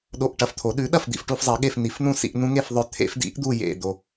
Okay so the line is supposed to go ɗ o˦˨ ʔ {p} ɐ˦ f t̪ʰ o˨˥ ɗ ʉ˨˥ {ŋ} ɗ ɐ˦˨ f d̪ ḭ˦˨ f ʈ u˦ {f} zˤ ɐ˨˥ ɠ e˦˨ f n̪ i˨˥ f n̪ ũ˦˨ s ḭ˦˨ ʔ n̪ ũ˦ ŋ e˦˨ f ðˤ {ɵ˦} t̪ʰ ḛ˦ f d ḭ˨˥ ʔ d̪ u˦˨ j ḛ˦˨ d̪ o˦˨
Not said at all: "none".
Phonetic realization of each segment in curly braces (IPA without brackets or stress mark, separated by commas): ʈ, none, f, ɵ˦